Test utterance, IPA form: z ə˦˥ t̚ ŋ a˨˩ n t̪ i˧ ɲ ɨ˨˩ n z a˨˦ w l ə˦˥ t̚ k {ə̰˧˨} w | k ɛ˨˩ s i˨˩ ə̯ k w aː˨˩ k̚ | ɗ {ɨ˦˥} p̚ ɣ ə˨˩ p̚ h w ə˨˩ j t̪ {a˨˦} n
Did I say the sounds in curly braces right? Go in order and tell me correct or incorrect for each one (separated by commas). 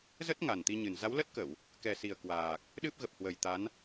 incorrect, correct, correct